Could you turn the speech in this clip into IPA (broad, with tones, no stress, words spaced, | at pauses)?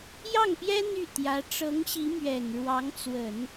jɑ˥˩ŋpjɛ˥ n̪y˥˩ t̪jä˧˥ ʈ͡ʂɤ˧˥ŋɕi˧˥ mɥɛ˨˩n ɻwɑ˧˥ŋt͡swə˨˩˦n